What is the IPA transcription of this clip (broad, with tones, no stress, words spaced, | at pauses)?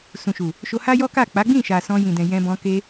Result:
sũ˨ʃu˨ | ʃo˧ha˦jɔ˦ka˦˨ k͡pa˨˦ɡ͡bĩ˦˨ʃa˨ sɔ̃˧jĩ˨dɛ̃˨ jɛ̃˧bɔ̃˧ ke˧